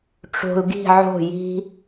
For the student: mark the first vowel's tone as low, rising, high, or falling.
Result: low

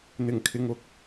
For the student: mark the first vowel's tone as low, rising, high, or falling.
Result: low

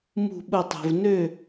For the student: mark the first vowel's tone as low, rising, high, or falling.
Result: falling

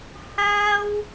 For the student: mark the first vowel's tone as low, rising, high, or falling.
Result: high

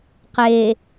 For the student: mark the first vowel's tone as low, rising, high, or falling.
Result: low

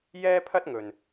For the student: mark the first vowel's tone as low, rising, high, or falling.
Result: high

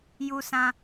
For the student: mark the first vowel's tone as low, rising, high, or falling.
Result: high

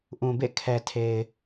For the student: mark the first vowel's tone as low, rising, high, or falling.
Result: low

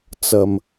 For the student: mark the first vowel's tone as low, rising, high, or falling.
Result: low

